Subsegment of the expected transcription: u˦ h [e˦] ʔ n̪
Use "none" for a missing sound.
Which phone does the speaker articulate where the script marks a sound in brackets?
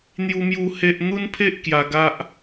e˦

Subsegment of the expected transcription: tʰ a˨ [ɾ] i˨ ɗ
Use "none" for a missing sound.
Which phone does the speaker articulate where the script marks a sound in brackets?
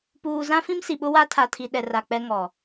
tʰ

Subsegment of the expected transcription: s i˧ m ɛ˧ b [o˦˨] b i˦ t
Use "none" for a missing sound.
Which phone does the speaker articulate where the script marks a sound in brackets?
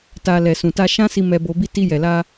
o˧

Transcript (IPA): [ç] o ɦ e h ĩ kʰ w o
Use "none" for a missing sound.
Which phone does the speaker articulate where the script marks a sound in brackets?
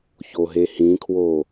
ç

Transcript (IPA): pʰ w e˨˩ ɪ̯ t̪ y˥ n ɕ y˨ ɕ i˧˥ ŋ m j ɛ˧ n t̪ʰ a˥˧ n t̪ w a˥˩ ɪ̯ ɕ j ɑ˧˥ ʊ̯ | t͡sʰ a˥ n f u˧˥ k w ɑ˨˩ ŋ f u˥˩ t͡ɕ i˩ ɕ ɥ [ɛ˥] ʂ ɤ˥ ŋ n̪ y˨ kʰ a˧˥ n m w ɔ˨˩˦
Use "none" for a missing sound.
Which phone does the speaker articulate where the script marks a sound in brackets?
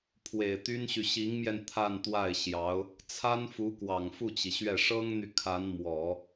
ɛ˥˩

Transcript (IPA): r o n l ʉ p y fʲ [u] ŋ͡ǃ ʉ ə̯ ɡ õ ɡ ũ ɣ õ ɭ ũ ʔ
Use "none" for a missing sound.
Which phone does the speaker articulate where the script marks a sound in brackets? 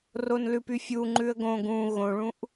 u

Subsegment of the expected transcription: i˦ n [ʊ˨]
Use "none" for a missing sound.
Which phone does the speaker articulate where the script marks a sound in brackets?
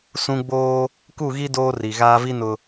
ʊ˨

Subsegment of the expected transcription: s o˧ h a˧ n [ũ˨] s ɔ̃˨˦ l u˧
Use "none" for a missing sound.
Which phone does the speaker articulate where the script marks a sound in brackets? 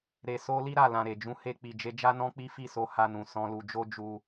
ũ˨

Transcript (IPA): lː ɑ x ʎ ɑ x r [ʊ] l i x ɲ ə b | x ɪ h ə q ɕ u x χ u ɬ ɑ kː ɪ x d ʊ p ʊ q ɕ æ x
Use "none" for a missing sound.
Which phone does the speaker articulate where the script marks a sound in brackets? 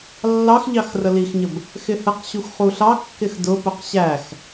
ə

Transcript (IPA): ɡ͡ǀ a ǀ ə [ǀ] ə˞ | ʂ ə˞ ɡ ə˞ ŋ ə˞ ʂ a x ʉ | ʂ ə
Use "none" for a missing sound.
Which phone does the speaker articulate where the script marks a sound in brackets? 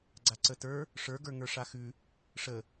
t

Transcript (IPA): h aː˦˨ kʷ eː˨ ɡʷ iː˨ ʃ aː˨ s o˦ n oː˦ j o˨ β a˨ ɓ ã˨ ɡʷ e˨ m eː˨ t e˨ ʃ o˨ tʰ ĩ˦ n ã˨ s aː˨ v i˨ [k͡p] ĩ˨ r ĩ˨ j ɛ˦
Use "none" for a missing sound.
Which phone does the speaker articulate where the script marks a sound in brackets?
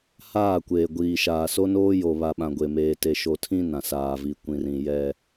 kʷ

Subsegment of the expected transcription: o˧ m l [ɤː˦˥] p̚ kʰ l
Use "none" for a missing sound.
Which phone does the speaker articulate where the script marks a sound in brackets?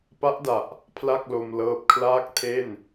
ɤː˦˥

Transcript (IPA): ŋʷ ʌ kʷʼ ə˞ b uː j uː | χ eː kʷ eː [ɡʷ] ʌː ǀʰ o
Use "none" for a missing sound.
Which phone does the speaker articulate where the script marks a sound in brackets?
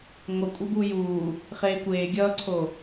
ɡʲ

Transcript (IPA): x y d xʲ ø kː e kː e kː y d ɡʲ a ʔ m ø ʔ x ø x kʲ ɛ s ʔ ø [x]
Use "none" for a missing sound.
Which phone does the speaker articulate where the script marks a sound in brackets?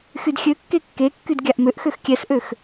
x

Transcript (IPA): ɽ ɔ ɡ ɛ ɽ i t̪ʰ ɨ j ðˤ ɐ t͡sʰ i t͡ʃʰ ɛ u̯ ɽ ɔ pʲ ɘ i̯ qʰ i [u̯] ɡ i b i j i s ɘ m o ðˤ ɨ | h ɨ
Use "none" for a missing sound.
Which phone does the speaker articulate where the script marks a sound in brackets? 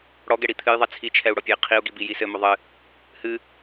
u̯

